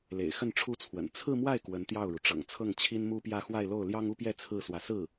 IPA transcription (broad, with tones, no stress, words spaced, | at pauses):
lḛ˨˩ɪ̯xə˥˩nʈ͡ʂʰu˥t͡sʰwə̰˨˩n t͡sʰɹ̩˥˧mwa˥˩ɪ̯ kwə˧˥nt̪jɑ˥˩ʊ̯ɻu˩ ʈ͡ʂɤ̰˨˩ŋt͡sʰɤ˥˩ŋ t͡ɕʰi˥nmu˥pjä˥˧ xwa˥˧ɪ̯lo˥˩ʊ̯ ljɑ˥ŋu˥pjɛ˥˧ t͡sʰɹ̩˥˩ swä˧˥ sɹ̩˥˩